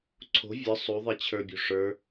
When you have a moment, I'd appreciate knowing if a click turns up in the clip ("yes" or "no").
yes